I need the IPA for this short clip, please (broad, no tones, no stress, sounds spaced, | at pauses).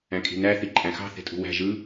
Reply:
æ̃ kʼ i̤ n æ θ i ǃʼ æ̃ x ɑ̤ θ e̤ tʼ ṳ w æ̤ ʒ ɯ